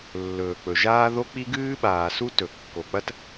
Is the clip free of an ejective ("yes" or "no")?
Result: yes